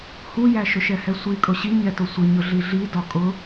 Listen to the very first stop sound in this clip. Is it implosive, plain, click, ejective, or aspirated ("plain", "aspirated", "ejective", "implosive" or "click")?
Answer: ejective